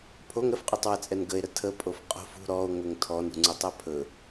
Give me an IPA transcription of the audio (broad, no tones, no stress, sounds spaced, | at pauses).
pʰ o ŋ ɾ ə f qʼ u tˤ w ə t͡sʼ ɛ n ɡ ə e̯ ɾ ə tʰ ə pʼ o f qʼ o̤ f ṳ ɾ ɔ o̯ ŋ ɵ ŋ tʰ ɔ n ṳ ŋ͡ǀ ɵ tˤ ɛ pʰ ɵ